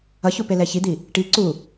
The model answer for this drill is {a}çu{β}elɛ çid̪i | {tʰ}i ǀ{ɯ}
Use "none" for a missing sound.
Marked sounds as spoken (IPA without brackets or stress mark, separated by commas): ʌ, p, ʈ, u